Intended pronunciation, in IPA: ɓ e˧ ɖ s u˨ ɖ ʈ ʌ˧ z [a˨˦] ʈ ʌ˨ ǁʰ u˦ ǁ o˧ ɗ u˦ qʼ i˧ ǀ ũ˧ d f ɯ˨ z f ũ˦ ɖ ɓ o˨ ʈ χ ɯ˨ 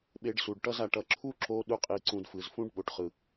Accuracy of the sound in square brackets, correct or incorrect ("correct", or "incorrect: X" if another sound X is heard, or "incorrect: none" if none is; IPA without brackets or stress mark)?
incorrect: a˨